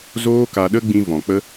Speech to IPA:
z oː˦ k a˧ ɗ ə˦ ɡ͡b ĩ˧ v ɔ̃˨ k͡p ə˦

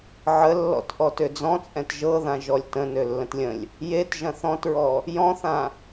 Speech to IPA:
ʕ ə lː ɔ̰ t ʔ ɔ t ø d͡z ɔ̃ t͡sʼ ɛ̃ t ʒ ɤ ð ã ʒ ɔ lʲ t ə̃ n ø lː ə̃ t lʲ ə̃ lʲ | j e t ʒ ɐ̃ θ ɔ̃ t ɹ ɔ | j ɔ̃ θ ã

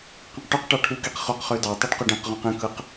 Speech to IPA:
q ẽ q ʈ u q ʈ ɑ ʈʰ u k i q χ o q χ ø d ɑ tˤ ɯ ɖ q o ɖ ẽ q ʁ ũ q ẽ k ɯ q

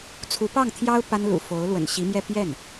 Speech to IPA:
t͡sʰ u˧˥ p ɑ˥˩ ŋ t̪ʰ j ɑ˥ ʊ̯ p a˥ n l ṵ˨˩ f o˧˥ ʊ̯ l w ə̰˨˩ n ɕ i˧˥ m j ɛ˥˧ p j ɛ˥˩ n

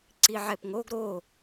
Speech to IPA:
ǀ i ʕ ɛ p ŋ o ɡ ɾ o

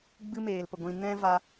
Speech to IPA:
ɡ͡b ɨ˦ m eː˨ l p ə˨ ɡʷ ĩ˨ n ɛ̃˦ v a˧

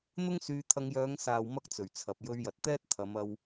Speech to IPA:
n̪ ʊ˥ ŋ s yː˧ t̪ʰ ɐ˧ ŋ j œː˨˧ ŋ s aː˨ w m ɐ˥ k̚ t͡s ɵ˨˩ ɥ t͡sʰ ɐ˨ p̚ j ɵ˧ ɥ j ɐ˨ t̚ t̪ ɛː˥ t̚ t̪ʰ ɐ˨˧ m ɐ˧ w

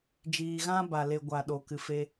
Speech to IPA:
d͡ʒ iː˧ ɣ ã˦ b a˦ l e˦ ɡʷ a˦ ɗ o˦ k ɨ˦ f e˦

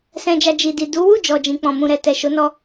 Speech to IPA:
s ɛ̃˨ d͡ʒ a˨ d͡ʒ i˨ d i˨ d u˨˦ w u˦˨ d͡ʒ ɔ˨ d͡ʒ ĩ˨ k͡p ɔ̃˨ m ũ˨ ɾ ɛ˨ t ɛ˨ ʃ o˨˦ n ɔ˦

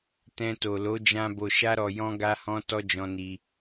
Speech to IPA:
t ɛ̃˧ t o˨ l o˨˦ d͡ʒ ã˧ b o˨ ʃ a˧ ɾ ɔ˨ j ɔ̃˧ ɡ a˧ h ɔ̃˧ t ɔ˦ d͡ʒ ɔ̃˧ n i˧

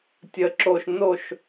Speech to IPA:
tʲ ə˨˦ ǁ o˧ ʃ n o˦˨ ʃ

